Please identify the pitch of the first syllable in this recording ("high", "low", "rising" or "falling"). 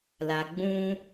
low